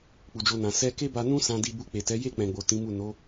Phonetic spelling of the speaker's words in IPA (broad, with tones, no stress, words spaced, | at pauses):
k͡pu˧d͡ʒo˦nã˧ sɛ˦ ke˦ba˧nũ˦ sã˧di˧ bu˧k͡pe˨tɛ˨˦ je˦˨k͡pɛ̃˨ɡ͡bo˨ tĩ˨˦mu˦˨ no˨˦